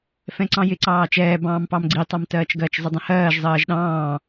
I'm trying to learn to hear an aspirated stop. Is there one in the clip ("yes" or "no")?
no